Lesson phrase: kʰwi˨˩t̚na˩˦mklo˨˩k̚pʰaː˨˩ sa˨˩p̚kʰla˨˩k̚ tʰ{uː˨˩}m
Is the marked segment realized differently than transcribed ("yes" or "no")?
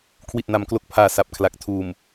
no